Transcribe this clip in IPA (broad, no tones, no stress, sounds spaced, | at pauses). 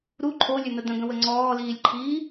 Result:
ɾ u ǃʰ o lʲ ɵ n̪ ə d̪ ə̃ ɡ ə̃ w ə ŋ͡ǀ ɔː l iː lʲ ǃʰ iː